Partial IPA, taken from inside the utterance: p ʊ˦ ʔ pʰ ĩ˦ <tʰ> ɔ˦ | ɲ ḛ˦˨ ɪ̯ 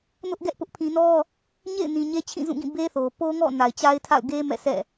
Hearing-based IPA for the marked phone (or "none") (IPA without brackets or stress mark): n